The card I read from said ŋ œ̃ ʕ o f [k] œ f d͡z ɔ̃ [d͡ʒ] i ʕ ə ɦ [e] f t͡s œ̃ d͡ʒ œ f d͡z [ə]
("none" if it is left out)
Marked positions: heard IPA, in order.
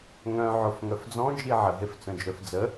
ŋ, d͡ʒ, e, ə

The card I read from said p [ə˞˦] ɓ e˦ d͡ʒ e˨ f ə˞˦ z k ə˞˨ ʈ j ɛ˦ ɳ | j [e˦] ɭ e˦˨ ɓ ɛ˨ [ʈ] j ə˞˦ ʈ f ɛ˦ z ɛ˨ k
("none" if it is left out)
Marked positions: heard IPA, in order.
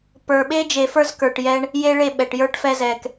ə˞˨, e˦, ʈ

